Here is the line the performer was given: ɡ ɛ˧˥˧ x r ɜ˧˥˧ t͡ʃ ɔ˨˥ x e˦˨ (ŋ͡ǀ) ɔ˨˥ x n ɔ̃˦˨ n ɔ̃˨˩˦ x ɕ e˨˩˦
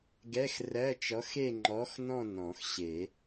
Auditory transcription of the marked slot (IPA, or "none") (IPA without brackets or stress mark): ŋ͡ǃ